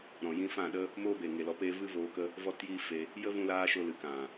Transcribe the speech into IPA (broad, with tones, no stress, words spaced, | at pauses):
ɾɔ̃˨ jĩ˧fã˦˨ɗə˦ | moː˦beː˨ ŋe˨lɔ˨˦peː˧ vɨ˦voː˧kə˦ | vɔ˦tjiː˦fe˧ | jə˦vũ˧laː˧ ʃo˧lɨ˨kã˨